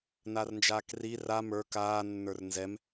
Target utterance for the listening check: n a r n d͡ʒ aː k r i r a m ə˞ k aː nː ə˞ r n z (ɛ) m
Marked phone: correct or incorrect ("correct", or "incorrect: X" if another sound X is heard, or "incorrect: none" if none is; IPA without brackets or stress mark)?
correct